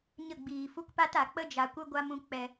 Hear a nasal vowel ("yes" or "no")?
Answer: yes